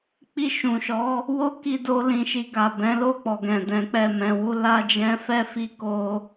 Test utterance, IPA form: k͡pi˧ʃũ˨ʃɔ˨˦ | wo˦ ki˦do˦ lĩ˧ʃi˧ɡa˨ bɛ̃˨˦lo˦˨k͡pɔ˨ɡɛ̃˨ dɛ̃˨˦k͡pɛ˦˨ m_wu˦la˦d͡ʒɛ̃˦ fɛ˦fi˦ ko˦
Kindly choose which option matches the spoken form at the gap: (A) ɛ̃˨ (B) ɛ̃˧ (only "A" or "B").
B